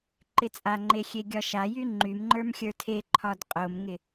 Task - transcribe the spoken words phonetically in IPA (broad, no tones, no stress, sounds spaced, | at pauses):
ǃ ɪ t͡sʼ a ŋ͡ǃ e xʲ e ɡʲ ɒ ʃ a j y ŋ͡ǃ y m ŋ͡ǃ ə˞ m xʲ ə˞ tʰ e ǃʰ ɒ d qʼ o m ŋ ɪ